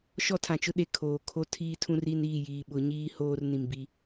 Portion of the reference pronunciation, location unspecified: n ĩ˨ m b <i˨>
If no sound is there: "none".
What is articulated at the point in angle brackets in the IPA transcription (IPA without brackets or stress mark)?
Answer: i˦